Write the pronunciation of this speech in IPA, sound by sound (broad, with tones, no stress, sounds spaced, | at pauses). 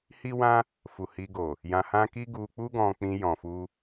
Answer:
h i˦ w ã˦ | f u˨ h i˧ ɡ o˨ | j ã˧ h ã˦ k i˦ ɡ u˧ k͡p u˦ ɡ ɔ̃˧ k͡p ĩ˧ j ɔ̃˨ f u˧